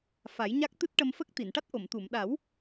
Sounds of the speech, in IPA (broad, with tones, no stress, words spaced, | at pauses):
fa˨˩˦jɲa˦˥k̚ t̪ɨ˦˥t̚ʈə˧mfə˦˥k̚ t̪i˨˩˨nʈa˦˥t̚ ʔo˨˩˨mt̪u˨˩˨m ɗa˨˩˦w